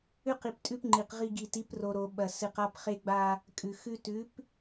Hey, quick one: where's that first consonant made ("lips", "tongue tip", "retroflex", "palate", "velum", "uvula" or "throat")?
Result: uvula